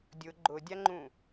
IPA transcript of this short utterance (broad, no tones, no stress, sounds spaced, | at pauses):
dʲ ʊ ɡ͡ǃ ʊ dʲ a ŋ͡ǃ ũ